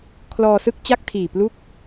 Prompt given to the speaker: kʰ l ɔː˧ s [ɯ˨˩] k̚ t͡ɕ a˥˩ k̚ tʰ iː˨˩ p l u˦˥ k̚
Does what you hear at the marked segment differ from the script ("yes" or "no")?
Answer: yes